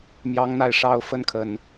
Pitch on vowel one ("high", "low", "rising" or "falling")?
rising